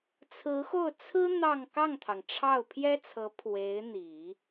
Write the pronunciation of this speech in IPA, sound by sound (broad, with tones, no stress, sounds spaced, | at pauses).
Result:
t͡sʰ ɹ̩˧˥ x o˥˩ ʊ̯ t͡sʰ ɹ̩˥ n̪ ɑ˥˧ ŋ k ɑ˥˩ ŋ t̪ʰ ɑ˩ ŋ ʈ͡ʂʰ ɑ˥˩ ʊ̯ pʰ j ɛ˥ t͡sʰ ɤ˧˥ pʰ w e˧˥ ɪ̯ n̪ i˨˩˦